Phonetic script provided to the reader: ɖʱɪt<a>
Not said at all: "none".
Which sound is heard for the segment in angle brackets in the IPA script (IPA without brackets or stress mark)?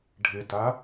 a